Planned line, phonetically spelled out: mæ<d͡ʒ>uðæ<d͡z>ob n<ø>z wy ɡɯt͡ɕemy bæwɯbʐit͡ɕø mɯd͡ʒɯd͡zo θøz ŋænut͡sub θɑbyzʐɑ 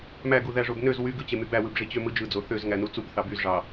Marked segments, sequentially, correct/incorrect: incorrect: ɡ, incorrect: ʐ, correct

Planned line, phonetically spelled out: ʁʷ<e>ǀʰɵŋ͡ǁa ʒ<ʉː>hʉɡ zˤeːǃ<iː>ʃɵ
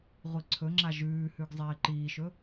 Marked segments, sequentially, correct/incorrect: incorrect: i, correct, correct

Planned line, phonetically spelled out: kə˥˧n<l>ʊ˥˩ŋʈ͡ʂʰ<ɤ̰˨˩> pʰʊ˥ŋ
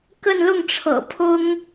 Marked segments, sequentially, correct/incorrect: correct, correct

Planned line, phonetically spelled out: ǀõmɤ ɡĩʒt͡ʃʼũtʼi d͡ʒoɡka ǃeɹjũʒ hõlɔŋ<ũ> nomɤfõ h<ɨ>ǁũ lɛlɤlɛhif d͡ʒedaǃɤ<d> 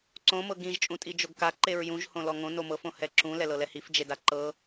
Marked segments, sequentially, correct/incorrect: incorrect: õ, incorrect: ɛ, incorrect: none

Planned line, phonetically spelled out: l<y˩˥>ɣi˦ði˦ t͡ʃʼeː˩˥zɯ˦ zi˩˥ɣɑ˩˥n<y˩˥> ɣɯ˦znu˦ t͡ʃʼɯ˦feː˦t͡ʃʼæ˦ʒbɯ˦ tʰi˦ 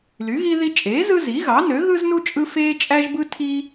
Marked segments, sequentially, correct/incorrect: correct, incorrect: ø˩˥

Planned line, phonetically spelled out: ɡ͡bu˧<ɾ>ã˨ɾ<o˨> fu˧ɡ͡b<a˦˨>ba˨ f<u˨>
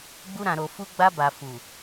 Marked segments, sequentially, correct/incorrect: correct, correct, incorrect: a˧, correct

